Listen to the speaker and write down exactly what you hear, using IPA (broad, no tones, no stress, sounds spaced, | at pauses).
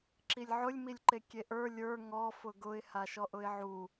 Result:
ǁ i lʲ ʕ ʊ lʲ m i lʲ ǃ e kʲ e ʔ ə˞ lʲ ə˞ ŋ ɔ f ʊ ɡ ʊ ɪ̯ h a ʃ ɔ ʔ ʊ ɪ̯ ʕ u